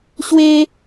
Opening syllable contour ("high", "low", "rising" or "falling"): high